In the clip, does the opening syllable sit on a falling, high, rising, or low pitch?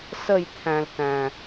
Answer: falling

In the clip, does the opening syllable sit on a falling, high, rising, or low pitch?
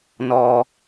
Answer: low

